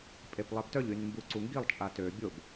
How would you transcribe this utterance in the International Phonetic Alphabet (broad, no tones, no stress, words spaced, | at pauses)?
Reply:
pʼeplˠɛptœʎ ynmbuǀuŋɡilˠ t͡ʃʼatø bʲob